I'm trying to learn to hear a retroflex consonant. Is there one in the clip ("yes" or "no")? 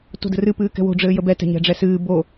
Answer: yes